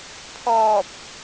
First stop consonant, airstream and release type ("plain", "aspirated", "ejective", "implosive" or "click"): aspirated